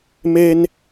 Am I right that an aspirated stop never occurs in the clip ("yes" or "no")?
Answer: yes